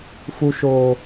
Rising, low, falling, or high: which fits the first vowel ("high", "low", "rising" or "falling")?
low